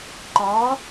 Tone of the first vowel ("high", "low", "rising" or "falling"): rising